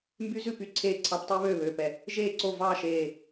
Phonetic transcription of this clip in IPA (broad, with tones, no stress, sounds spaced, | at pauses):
m b y˦˥ z ʉ˥˩ p y˥˩ ǀʰ eː˥˩ ǀʰ ɑ˦˥ p tˤ y˦˥ β øː˥˩ β ø˧˩ p ɛ˧˩ | ʒ eː˥˩ ǀ o˥˩ v ɑː˥˩ ʃ eː˧˩